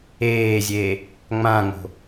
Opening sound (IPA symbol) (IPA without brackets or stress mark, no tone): eː